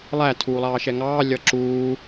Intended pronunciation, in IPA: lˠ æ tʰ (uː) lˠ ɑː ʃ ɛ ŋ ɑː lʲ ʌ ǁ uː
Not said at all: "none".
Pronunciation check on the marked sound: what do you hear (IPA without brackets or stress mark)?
uː